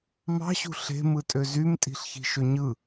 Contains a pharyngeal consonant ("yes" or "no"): no